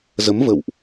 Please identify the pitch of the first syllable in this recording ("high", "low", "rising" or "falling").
rising